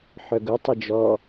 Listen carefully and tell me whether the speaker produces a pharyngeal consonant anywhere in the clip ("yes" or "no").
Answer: yes